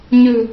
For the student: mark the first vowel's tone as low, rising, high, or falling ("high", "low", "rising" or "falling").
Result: low